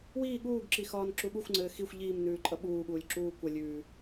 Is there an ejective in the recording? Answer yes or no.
yes